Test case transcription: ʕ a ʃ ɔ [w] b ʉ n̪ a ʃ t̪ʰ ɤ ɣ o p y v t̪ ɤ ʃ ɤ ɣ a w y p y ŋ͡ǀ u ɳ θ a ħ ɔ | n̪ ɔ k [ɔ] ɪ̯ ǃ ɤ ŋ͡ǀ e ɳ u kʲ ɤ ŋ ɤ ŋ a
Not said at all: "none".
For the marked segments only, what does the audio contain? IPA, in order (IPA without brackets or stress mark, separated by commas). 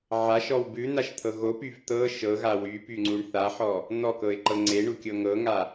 w, ɤ